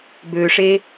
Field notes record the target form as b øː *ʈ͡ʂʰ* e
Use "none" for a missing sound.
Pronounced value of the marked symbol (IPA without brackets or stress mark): ʂ